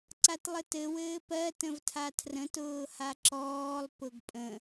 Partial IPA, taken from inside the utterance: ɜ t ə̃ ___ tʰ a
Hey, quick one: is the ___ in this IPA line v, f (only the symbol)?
v